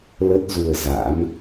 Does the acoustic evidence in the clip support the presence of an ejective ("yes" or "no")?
no